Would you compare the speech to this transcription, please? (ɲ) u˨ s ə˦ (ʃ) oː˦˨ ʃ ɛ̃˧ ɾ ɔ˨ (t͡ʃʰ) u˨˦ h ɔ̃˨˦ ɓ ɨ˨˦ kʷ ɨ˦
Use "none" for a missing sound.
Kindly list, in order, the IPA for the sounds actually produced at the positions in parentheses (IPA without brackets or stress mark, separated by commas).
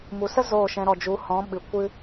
m, z, d͡ʒ